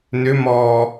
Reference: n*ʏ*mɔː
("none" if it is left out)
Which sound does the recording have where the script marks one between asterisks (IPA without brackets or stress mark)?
ʏ